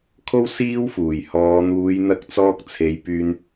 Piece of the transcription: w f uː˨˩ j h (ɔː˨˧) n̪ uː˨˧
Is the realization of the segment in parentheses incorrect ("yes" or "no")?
no